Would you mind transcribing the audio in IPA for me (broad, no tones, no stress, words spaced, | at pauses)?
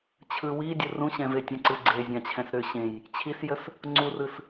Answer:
t͡ɕʰɯ widʲə rũɕɛ̃ve tʲə̃ǀɯ ɡ͡ǀezʲãt͡ɕʰɛ̃s ɾʏ ɕẽj | t͡ɕʰisjəs | ŋ͡ǀurɯs